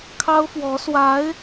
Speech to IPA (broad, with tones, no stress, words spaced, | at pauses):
kʰɑ˥ʊ̯fwɔ˧˥ swa˧˥ɪ̯